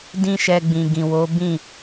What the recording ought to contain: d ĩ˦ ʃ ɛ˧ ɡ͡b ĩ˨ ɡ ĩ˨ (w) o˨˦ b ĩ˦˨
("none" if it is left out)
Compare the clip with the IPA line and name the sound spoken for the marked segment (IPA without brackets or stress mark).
w